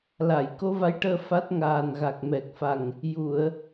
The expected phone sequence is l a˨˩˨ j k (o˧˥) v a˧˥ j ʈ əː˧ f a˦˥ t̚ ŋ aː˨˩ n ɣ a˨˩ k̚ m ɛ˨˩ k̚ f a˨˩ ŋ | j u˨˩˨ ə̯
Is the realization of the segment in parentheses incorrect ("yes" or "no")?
no